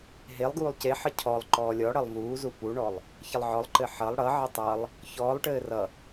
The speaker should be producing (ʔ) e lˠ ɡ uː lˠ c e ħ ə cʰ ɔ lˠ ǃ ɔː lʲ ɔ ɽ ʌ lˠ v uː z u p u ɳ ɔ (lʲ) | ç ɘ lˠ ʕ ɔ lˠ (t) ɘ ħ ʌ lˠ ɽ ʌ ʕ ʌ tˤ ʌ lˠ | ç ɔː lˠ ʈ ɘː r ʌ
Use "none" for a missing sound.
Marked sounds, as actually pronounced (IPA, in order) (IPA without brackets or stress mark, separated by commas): ɦ, lˠ, ǃ